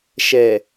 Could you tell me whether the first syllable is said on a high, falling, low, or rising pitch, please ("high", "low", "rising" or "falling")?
low